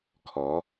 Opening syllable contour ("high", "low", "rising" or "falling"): rising